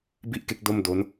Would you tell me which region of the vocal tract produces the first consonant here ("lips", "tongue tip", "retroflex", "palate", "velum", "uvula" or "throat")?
lips